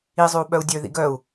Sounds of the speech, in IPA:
izˤʉu̯ ɓœu̯dʲø ðḭɡœu̯

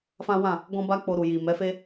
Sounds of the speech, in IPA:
fã˦wã˦˨ | ɡɔ̃˦ba˦k͡po˧ɾu˨ ji˨mɛ˨˦fe˦

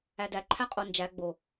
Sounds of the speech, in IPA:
ædæǃʰæ qʼond͡ʒæ ɡ͡bo

